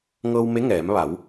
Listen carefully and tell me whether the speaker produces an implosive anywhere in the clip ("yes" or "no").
no